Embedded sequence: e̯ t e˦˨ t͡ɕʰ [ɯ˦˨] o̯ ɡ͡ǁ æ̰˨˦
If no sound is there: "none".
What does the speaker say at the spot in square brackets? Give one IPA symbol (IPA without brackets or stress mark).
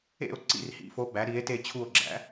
u˦˨